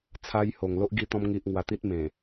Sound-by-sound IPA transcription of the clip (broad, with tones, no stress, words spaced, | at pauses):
t͡sʰa˧j ho˨˩ŋlo˦ʔɡi˧t̪ɔ̃˧m ŋi˨ʔ ŋwa˧t̪i˦t̚mẽ˨˩